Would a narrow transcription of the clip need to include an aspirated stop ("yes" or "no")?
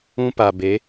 no